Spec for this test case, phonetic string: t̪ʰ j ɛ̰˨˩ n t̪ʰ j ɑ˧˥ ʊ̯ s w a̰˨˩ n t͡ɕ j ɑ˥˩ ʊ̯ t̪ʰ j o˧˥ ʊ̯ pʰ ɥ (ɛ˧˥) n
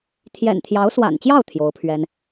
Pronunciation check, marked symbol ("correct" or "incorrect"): incorrect